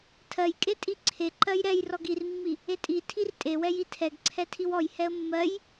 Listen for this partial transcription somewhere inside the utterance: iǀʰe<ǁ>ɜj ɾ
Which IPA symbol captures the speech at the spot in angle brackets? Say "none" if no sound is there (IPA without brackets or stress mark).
ǃ